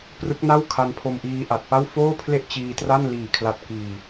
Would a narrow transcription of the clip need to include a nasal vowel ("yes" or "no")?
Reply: no